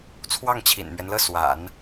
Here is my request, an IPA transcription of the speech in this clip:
t͡sʰwɑ˥˩ŋt͡ɕʰḭ˨˩nmɥɛ˦nlɤ˥˩ swa̰˨˩˦n

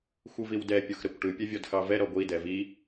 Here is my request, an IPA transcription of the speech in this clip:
xʷɯviwdɛ pʲoxɾɐkʷʈɯ pʲɛvʲɔdxɑvɛ ɾɔɡʷi dɛvi

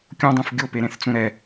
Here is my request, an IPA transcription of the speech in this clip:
kʲõdˤũf ɡʲopeɾẽθt͡sũ ɾɛ

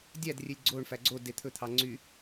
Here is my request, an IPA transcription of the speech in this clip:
dʲædrʲelʲ ɡ͡ǀoɳfæ ɡ͡ǀo det̪ʰɵt̪ʰɑ ŋ͡ǀy

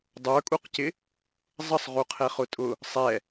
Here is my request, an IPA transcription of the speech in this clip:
dˤə˞kʼuqcɪ | zˤəsˤʁuqʰɛ χʊtʼʊ | sˤɛ

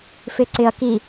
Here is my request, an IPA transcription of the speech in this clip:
fɪǀɪɐ̯ki

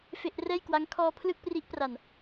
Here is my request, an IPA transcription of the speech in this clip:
fe˥˩ʔ rɛː˥˩jkwa˦˥ŋ kʰɔː˧ pʰlɯ˥˩k̚pri˦˥ʔpra˨˩n

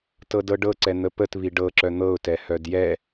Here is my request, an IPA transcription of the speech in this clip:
tɤdɤɖɤǀɛ n̪əpətβi ɖɤǁœ n̪ɤʊ̯tɛ hœdjɛ

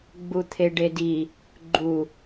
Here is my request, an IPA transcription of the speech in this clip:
ɡ͡but̪ʰeɖedi | ɡ͡ǃu

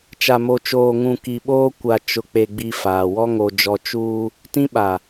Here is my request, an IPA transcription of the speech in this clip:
t͡ʃa˨mo˨t͡ʃoː˨ŋũ˨ ki˨ɓoː˦ kʷa˨t͡ʃʊ˨k͡pe˨ ɡ͡bi˦faː˨ wɔ˦ŋo˨ d͡ʒɔ˦ t͡ʃuː˦ | tĩ˦ɓa˨

